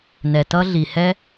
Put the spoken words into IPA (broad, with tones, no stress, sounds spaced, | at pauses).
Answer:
n ɛ˩ t ʌ˥ ɮ i˩ h ɛ˥